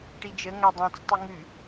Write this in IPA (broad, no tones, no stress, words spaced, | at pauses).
ʈid͡ʒə ŋadˤɛ̃t͡s tˤʉŋʉ